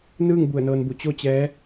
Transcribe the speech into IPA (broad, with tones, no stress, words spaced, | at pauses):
nɯː˥˨ŋ bu˧˩ə̯nɤː˧nbu˧˩ t͡ɕo˥˨t͡ɕɛː˧˥